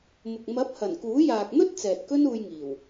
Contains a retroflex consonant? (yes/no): no